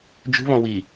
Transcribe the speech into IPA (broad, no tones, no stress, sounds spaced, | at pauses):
d͡ʒ ṳ β ɔ̃ w i